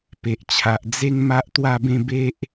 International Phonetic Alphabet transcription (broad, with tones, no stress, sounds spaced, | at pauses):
p e˨ ʔ t͡ɕʰ a˨ ʔ d͡z e˦ ŋ m a˦ ʔ t̪ w a˥˧ b ẽ˥˧ b e˦ ʔ